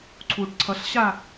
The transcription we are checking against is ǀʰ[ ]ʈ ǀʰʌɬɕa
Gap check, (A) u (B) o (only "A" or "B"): A